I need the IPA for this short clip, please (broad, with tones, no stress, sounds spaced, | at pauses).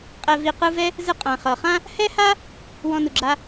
qʼ ɛ˨ v i˨ q ɯ˦ v ɛ˥ | z ɯ˦ qʼ ã˩ χ ɤ˩ χ ã˥ | h ɛ˥ h a˥ | w ɔ̃˨ n u˩ ɡ͡ǁ a˨